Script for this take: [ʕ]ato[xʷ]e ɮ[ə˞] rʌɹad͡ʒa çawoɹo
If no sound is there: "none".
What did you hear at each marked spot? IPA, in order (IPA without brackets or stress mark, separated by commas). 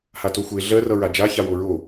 h, xʷ, ɜ